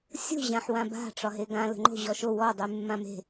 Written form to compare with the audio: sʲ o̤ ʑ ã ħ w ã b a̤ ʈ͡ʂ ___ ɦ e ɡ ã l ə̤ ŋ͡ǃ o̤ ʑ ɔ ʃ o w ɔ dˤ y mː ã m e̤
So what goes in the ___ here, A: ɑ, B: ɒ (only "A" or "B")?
B